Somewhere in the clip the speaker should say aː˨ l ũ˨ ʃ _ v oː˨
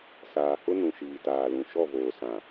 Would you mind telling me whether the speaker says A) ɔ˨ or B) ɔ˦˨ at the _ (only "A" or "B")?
B